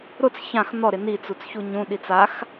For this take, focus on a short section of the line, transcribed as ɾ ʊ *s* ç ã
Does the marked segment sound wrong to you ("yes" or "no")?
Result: yes